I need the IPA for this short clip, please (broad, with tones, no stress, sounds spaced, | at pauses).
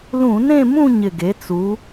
l ũ˧˩˧ n ẽ˥˧ m ũ˥˧ ɲ ɪ˨˩ ɡ e˩˧ t͡s u˩˧